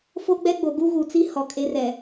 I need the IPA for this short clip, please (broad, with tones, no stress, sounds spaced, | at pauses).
f o˦ ɡ͡b ɛ˦ ɡ͡b o˨ ɡ u˦ ɣ u˨ t͡s i˦ h ɔ˨ kʼ e˦ r ɛ˨